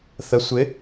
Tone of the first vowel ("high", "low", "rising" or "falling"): rising